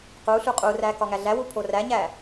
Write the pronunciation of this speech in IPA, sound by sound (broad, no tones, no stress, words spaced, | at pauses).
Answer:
quɬu qʼuræ kɒŋæɮæwu pʰoræɲæ